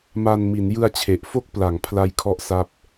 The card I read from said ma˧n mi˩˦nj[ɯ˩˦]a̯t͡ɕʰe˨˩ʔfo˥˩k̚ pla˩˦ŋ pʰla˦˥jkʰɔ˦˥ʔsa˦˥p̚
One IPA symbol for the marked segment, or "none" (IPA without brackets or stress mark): ɯ˧